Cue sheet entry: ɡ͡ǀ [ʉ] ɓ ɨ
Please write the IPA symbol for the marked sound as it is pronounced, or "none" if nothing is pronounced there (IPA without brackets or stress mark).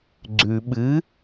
ʉ